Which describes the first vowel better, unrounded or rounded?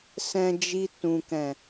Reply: unrounded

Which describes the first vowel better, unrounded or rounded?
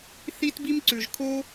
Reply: unrounded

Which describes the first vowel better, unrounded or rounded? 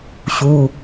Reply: rounded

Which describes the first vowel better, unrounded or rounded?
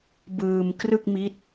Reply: unrounded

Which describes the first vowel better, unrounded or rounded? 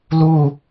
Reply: rounded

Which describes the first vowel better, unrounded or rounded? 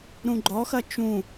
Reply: rounded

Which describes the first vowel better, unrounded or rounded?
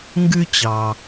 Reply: rounded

